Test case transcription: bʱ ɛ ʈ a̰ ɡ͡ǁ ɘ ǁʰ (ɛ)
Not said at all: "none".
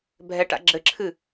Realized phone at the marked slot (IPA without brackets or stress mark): ɨ